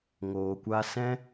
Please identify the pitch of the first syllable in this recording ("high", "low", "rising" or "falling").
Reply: low